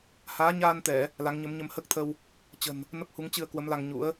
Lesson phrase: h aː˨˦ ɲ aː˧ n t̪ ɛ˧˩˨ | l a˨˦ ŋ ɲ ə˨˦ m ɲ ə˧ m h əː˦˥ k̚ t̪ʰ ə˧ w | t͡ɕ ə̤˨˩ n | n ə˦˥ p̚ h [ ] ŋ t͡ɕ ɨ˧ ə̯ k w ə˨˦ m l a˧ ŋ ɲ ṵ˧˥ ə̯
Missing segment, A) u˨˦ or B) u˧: A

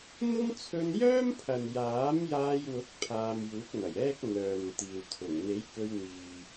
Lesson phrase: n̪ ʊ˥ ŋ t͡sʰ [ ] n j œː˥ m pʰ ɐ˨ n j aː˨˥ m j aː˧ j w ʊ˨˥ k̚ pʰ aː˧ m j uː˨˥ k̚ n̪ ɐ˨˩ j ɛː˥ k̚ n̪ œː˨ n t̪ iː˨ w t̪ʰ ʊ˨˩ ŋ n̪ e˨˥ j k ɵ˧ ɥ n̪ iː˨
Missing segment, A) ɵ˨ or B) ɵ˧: B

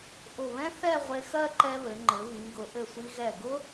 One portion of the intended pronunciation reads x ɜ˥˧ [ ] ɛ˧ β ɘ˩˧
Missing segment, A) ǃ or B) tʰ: A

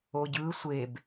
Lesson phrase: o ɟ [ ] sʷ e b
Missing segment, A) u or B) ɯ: B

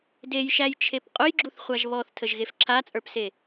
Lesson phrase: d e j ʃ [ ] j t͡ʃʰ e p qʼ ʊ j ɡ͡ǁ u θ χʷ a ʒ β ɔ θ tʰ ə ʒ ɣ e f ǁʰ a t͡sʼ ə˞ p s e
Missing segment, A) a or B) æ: B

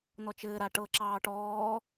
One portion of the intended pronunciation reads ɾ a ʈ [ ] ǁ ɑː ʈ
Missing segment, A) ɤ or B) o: A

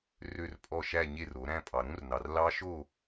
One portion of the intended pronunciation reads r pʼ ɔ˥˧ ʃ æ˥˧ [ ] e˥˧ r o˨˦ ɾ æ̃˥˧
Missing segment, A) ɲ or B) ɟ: A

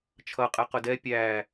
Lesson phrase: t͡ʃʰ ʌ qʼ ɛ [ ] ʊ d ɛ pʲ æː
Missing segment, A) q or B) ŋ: A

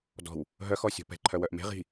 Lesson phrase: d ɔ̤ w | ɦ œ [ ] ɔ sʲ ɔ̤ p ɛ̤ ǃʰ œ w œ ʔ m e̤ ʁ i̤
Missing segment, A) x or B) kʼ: A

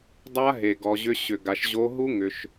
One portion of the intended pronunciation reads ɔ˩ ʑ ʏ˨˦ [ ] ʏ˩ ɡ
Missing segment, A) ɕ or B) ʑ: A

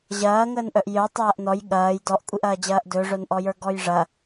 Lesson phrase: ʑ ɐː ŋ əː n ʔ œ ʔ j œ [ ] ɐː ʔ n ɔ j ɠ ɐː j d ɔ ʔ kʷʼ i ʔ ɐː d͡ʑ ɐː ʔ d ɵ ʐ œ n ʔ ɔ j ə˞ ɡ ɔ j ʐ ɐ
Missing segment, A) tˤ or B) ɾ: A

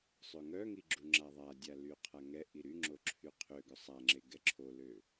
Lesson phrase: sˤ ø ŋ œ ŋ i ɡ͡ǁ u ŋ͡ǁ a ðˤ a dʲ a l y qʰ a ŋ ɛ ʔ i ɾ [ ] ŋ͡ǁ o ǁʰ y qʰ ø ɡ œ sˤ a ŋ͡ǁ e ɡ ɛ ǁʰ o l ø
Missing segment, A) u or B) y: B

